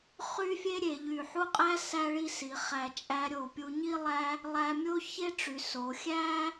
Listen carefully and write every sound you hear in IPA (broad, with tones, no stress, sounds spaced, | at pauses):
χ y˥ fʲ e˥ ɾʲ e˩˧ ʎ y˧˩ ħ u˥˧ qʼ æ˥ s æ˥ ɭ i˥˧ s i˩˧ χ æ˧˩ t͡ʃʼ æ˧ ɾʲ o˧˩ pʲ u˧ ɲ i˥˧ lˠ æ˥ | lˠ æ˧ mʲ o˥ ç e˥ ʈ͡ʂ y˩˧ s o˩˧ xʲ æ˥